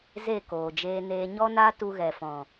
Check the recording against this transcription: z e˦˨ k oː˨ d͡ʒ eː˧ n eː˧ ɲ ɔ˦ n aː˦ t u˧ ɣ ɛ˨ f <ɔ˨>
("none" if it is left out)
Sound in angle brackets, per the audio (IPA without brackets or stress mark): ɔ̃˨